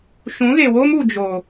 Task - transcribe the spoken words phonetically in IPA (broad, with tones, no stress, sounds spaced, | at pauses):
ʃ ũ˨˦ ɣ e˨ w oː˦ m u˨ d͡ʒ o˨